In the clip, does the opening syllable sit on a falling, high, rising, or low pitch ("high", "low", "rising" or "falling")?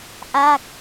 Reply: falling